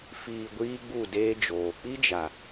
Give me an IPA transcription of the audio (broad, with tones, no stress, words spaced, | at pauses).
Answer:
fiː˨ ɡʷiː˦ɡ͡bu˦˨deː˦d͡ʒoː˨ k͡pi˦d͡ʒa˨